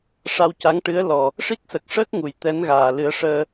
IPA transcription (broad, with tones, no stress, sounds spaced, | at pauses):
ʂ a˧ w c a˧˥ ŋ ʈ ɨ˧˥ ə̯ l ɔ˨˩ | ʂ i˦˥ k̚ s ə˨˩ k̚ ʂ əː˦˥ k̚ ŋ u˨˩ j t̪ ɛ˧˥ n ɣ aː˨˩ l ɨ˨˩˦ ə̯ ʂ əː˧